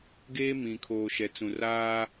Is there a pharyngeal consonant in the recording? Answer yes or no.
no